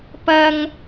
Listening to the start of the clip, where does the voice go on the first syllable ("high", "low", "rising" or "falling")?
low